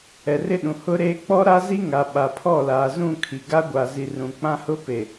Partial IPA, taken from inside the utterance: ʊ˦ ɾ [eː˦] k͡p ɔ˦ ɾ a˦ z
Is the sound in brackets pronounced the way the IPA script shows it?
yes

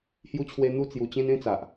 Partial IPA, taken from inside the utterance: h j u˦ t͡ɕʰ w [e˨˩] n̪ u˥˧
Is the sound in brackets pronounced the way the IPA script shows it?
no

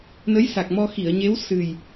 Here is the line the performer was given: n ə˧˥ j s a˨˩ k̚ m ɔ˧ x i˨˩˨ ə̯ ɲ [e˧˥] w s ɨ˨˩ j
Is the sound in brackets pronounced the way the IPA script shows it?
yes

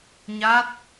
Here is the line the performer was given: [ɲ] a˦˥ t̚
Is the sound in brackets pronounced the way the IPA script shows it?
yes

